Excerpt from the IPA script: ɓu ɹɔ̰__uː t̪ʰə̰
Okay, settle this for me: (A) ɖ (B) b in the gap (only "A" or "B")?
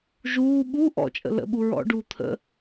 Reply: A